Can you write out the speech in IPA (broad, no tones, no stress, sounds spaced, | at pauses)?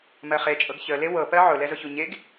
m ɜ χ e t͡ʃʼ ɤ ɡ ç ə l e w ɤ p ɜ ʕ ʊ l ɛ z ʊ ç u ɲ e ɡ